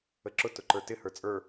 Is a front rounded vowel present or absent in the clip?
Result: absent